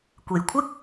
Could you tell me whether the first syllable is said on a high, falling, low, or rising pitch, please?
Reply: low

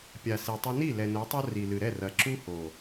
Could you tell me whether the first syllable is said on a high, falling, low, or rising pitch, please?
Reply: low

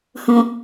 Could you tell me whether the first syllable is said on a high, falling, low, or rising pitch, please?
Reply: low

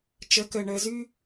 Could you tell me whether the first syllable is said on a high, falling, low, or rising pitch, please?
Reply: rising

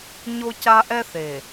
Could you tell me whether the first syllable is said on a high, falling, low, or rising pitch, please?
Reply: high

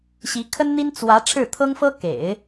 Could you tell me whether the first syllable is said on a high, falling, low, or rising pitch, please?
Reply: rising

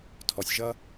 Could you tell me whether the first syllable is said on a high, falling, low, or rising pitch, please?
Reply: low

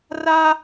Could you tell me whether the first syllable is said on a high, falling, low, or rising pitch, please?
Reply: high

